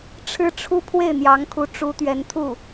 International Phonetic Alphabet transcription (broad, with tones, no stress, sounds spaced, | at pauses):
ʈ͡ʂʰ ɻ̩˥ ʈ͡ʂʰ u˥ pʰ w e˥˩ ɪ̯ n̪ j ɑ˧˥ ŋ kʰ u˧˥ ʈ͡ʂ u˧˥ t̪ ɥ ɛ˧˥ n t̪ʰ u˥˩